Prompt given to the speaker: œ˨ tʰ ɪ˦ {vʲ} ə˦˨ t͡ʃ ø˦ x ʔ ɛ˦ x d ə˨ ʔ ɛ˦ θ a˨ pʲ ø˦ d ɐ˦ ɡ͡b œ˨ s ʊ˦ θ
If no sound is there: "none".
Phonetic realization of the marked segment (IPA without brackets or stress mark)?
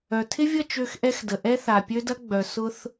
vʲ